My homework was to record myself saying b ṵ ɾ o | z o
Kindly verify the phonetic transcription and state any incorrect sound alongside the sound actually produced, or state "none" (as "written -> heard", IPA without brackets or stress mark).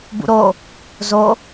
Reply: none